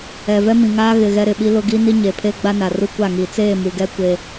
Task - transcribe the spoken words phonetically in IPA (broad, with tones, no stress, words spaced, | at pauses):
ɛ˨vɛ˦mĩ˨ŋaː˦ ɣɪ˨ ɣɛ˦ɾɪ˨ɓi˦lʊ˦ ɡi˦ ni˦ɲe˨pʰe˦ ɡ͡ba˦na˨ru˦ kʷa˦˨ŋiː˨ t͡seː˦˨mu˨ɡɛ˦ kʷe˦